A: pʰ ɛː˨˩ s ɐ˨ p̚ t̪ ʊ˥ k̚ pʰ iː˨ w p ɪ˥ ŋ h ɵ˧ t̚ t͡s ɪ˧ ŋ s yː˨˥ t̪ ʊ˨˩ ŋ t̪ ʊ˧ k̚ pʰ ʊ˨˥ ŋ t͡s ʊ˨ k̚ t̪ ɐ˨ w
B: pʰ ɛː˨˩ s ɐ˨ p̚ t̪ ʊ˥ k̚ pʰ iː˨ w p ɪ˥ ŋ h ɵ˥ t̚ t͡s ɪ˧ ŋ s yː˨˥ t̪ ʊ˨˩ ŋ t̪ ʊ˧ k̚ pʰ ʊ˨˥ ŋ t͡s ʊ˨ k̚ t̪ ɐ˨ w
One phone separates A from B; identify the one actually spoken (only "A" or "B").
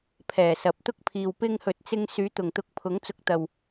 A